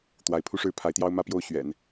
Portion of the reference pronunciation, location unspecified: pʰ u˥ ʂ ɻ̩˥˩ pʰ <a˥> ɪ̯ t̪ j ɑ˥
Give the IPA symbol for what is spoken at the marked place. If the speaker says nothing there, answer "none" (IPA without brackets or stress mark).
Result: a˧˥